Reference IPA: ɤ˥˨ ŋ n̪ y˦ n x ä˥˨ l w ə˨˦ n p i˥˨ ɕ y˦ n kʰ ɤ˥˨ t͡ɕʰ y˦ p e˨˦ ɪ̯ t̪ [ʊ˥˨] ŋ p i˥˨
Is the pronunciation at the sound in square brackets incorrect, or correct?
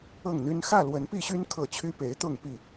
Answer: correct